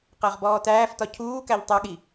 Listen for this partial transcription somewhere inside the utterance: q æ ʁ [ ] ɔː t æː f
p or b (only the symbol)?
b